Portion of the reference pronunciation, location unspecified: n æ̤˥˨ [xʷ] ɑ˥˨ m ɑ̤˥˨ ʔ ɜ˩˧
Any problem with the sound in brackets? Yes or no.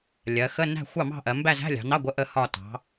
no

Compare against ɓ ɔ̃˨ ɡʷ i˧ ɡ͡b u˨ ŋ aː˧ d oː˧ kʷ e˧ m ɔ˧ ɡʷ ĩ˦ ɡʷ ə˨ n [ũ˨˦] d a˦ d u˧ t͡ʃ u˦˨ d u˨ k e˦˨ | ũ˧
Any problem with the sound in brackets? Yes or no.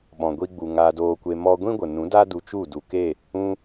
no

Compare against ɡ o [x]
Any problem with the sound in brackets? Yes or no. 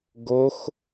no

